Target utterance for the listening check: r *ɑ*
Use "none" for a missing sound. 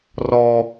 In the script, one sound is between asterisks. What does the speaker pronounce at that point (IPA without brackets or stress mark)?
ɔ